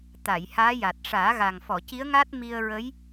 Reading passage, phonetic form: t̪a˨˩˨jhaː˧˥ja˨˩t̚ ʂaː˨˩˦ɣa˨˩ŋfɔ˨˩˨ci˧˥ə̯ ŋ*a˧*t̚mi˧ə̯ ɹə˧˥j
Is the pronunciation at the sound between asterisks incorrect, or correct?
incorrect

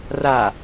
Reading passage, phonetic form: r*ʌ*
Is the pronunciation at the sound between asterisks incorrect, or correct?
incorrect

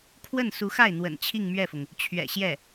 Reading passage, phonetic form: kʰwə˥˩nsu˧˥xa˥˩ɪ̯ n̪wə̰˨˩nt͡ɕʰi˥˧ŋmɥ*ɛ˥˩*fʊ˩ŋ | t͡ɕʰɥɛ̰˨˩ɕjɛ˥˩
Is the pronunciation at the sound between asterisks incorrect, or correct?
correct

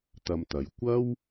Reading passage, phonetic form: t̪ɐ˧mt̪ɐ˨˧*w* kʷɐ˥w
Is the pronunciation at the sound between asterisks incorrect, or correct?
incorrect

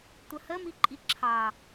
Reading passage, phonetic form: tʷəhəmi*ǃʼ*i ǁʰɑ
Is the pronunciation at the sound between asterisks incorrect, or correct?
correct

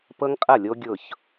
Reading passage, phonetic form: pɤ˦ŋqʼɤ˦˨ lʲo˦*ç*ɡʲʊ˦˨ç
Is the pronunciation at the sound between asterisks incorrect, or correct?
incorrect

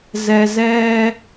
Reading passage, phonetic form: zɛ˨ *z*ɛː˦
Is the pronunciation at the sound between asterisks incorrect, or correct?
correct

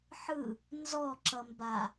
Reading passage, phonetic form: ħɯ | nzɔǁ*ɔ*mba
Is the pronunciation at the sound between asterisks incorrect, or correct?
incorrect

